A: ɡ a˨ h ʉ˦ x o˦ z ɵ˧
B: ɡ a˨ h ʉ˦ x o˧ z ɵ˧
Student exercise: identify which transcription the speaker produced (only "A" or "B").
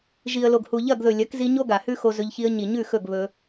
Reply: B